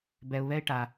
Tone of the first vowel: low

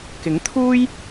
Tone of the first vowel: rising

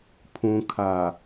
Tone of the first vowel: low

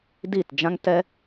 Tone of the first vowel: falling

